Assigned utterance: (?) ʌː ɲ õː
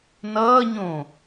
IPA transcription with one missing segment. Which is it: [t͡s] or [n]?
n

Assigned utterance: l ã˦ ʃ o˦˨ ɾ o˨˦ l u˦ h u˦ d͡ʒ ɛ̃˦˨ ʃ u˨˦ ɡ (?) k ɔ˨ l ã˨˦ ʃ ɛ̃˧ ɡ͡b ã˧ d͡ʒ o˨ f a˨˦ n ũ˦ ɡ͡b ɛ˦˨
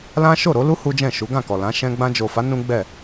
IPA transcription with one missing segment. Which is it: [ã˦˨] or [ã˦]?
ã˦˨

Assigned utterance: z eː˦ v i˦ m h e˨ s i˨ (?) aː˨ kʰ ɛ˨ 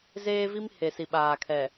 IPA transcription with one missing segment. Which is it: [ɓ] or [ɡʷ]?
ɓ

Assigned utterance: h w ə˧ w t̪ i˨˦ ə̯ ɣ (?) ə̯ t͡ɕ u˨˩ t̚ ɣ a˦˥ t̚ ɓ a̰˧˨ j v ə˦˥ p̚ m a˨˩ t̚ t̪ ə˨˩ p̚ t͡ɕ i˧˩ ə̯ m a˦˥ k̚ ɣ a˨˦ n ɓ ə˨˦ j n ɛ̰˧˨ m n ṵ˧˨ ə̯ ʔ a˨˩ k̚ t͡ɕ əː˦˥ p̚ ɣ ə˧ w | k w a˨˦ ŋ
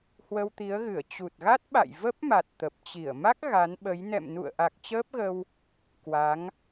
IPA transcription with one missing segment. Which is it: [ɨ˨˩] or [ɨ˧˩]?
ɨ˧˩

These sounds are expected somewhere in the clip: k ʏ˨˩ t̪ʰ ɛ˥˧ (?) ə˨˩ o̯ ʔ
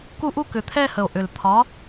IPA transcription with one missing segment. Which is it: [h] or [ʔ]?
h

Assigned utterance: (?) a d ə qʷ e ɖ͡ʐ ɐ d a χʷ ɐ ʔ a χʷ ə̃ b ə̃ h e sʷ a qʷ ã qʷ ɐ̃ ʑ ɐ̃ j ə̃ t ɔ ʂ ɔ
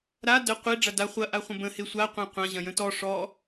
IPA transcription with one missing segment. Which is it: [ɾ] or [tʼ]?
ɾ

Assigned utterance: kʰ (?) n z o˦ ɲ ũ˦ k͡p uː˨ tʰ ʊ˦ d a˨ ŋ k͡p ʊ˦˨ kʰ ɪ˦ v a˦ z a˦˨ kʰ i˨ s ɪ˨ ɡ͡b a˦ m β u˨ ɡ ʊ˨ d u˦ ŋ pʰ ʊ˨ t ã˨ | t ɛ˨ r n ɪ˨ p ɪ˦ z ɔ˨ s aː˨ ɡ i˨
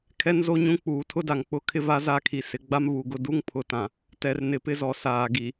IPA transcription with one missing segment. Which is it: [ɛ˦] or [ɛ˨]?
ɛ˦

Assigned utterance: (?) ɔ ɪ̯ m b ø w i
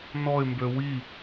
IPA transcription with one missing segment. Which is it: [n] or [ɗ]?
n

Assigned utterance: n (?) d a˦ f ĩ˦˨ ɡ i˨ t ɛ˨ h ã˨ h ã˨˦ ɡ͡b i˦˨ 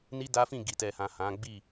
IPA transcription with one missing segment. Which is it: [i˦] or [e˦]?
i˦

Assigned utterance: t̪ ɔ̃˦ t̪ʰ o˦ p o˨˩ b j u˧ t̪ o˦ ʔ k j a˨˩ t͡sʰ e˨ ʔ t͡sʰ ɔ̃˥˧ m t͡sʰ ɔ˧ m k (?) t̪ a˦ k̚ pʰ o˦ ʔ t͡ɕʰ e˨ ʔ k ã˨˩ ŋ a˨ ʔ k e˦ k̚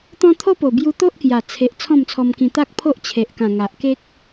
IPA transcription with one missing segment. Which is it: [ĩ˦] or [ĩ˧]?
ĩ˧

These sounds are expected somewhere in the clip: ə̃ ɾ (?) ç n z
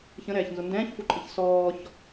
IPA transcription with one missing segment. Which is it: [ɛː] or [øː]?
ɛː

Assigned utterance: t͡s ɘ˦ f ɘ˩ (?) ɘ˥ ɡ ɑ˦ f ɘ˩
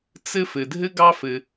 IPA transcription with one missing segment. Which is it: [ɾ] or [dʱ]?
dʱ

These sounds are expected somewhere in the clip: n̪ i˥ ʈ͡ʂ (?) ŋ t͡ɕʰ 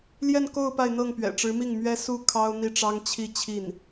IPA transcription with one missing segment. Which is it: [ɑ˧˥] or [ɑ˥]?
ɑ˥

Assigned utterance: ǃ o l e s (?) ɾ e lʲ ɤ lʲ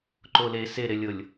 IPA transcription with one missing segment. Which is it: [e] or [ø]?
e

